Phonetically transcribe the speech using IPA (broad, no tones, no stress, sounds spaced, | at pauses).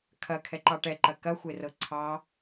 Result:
kʰ ɐ kʰ ɛ ǃ ɑ ʈ ɛ ǃ ɐ k ɐ xʷ e r ɤ ǀʰ ɑ